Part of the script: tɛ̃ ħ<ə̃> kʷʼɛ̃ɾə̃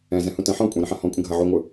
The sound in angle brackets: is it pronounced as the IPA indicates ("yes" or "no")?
no